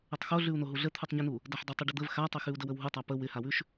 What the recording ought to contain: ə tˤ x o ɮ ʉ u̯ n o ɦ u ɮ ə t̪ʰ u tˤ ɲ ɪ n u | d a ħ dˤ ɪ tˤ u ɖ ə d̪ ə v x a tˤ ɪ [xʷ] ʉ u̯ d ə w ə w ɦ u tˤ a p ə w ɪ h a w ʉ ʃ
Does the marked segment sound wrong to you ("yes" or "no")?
yes